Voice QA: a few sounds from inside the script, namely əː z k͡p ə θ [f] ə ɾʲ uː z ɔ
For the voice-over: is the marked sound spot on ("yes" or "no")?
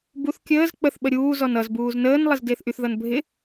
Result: no